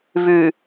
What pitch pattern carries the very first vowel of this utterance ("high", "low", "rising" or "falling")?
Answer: low